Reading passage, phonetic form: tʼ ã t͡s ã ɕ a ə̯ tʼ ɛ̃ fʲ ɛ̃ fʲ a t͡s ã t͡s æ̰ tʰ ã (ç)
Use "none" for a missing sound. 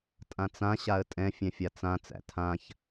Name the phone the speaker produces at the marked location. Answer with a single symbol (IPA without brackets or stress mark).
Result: ç